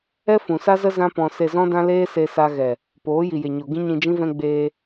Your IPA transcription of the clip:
ɛ˦fũ˨sa˦zə˦ zã˦pɔ̃˧ se˧zɔ̃˦dã˦ leː˦se˧sa˧ ɣɛ˨ | poː˨˦ji˨je˨ɲo˨ ɡĩ˦ɲĩ˧d͡ʒĩ˦ vɛ̃˧ɡ͡beː˧

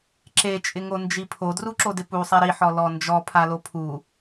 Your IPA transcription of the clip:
ǁe t͡ʃʼɪŋond͡ʒipʰo druǁodɪpu sˤɛɾi ħɔlɔnd͡ʒɔ pʰalopʰu

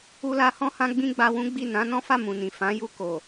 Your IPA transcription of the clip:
u˧la˧ hɔ̃˦hã˦ ɡ͡bĩ˦ɡ͡ba˧wũ˦ɡ͡bi˦˨ nã˨˦ nɔ̃˦fa˦˨ mũ˨nĩ˨ fã˨˦ju˧ko˨

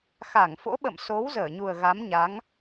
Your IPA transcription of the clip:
xa˧˩ŋfo̰˧˥ɓə̰˧˨m so˨˦w zəː˧˩ɲu˨˩ə̯ ɣa˨˦mɲa˨˦ŋ

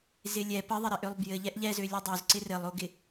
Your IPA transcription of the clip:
zɪlʲɛ pəðˤɪɾɪʔølˠ bjɘ ʎɛʔʎɛzø lʲʌdˤøzǀɪ rɘlˠoɡɪ

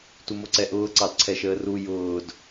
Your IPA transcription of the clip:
tumoǀɛʔʊː ǀɑdǀʰɛʃəːru jʊːd

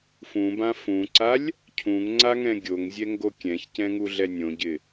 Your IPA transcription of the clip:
fũbã fũǀalʲ | cʰũŋŋ͡ǀaŋɛ̃ ɡʲoŋzʲɛŋɡo kʲɛ̃çcɛ̃ŋuɮɛ nʲõɟɪ

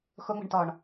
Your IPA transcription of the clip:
xʊŋ͡mə̤ɳtɔɳ

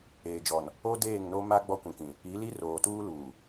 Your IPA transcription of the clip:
eː˨d͡ʒɔ˨n | o˦deː˦˨ŋno˦ ma˦ ɡ͡bɔ˦kʷĩ˨kĩ˨ | i˨˦li˦ roː˨tuː˦luː˨

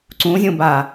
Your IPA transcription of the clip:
ǀũzʲũba

